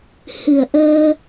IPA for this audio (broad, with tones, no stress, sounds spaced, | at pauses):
h ɨ˨˩ ə̯ ʔ əː˧